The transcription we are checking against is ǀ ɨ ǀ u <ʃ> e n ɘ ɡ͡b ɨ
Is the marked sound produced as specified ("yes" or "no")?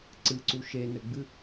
yes